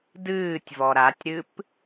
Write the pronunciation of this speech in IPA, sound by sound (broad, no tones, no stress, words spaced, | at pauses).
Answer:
dɨːtʲvɔ ɾatʲɾɨp